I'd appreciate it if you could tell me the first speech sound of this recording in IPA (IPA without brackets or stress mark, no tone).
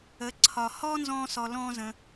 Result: ə